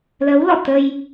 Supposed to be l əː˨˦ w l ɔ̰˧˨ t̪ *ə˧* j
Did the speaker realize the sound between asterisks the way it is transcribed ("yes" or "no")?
yes